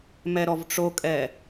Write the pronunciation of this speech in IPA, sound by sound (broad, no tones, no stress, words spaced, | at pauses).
mɛɾɔvʈ͡ʂokʼɛ